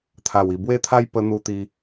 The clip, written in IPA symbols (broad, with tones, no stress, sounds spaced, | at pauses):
t̪ʰ a˨˩ w i˨˩ b w e˦ t̪ʰ a˦ j p ə˧ n̪ u˧ t̪ i˧